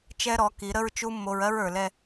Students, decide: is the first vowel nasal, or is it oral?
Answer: oral